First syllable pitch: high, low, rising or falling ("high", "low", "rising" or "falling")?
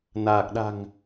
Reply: low